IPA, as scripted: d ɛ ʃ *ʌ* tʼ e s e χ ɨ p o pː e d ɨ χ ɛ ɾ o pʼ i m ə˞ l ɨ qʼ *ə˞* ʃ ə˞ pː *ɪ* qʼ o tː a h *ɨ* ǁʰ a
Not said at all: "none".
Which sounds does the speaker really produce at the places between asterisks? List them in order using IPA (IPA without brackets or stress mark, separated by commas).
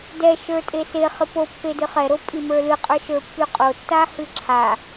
ə˞, ə˞, y, ɨ